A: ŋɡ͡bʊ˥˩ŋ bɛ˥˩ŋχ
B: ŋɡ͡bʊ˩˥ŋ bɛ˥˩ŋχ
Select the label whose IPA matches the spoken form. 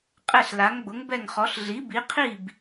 B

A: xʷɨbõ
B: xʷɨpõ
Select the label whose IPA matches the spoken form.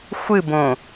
A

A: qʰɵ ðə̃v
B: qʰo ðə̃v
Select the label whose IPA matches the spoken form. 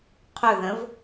A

